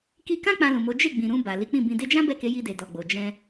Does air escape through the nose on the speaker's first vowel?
no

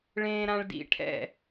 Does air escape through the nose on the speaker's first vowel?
yes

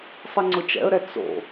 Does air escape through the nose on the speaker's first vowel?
no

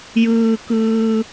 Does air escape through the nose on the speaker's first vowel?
no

